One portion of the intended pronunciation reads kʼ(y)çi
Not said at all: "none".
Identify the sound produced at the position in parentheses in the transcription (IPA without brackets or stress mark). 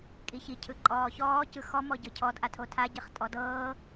i